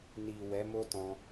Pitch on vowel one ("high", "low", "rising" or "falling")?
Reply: low